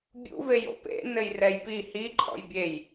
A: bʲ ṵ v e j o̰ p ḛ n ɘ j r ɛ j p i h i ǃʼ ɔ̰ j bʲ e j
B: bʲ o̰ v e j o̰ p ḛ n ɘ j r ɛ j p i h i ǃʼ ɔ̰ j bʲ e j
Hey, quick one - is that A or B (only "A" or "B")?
A